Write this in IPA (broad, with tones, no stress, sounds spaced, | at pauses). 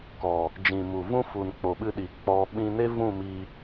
k ɔ˨ | d͡ʒ ĩ˨ m u˨ v ũ˦ f u˨ n k͡p o˨ ɓ ɨ˧ ɗ i˨ k͡p ɔ˧ ɓ ĩ˧ n e˦ v ũ˦˨ m i˧